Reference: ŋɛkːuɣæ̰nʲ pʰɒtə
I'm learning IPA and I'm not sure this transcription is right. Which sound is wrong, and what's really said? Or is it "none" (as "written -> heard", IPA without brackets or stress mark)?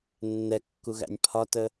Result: ŋ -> nː